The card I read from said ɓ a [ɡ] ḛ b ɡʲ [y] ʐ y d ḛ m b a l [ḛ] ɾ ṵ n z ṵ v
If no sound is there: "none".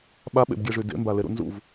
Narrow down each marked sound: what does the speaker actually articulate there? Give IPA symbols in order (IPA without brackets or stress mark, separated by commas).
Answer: ɓ, e, e